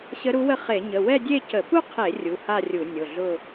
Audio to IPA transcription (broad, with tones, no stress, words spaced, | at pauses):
ɕə˧˥ɾu˧˥wə˥˧ χe˧˩˧ɲə˩˧˩ wɛ˥˧dʲe˥˧cə˧˩˧ pu˥˧qʰe˧˩˧ rʲu˩˧˩ha˥˧rʲu˧˩˧ nʲʊ˩˧˩ɮʊ˥˧